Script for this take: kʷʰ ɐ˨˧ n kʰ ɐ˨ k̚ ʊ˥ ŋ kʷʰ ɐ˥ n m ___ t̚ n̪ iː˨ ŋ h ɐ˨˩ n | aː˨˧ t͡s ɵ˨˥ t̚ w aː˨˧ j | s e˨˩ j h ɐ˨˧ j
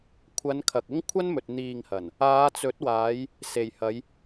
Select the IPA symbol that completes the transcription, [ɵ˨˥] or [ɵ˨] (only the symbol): ɵ˨